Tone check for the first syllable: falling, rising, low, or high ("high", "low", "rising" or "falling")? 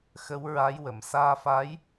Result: rising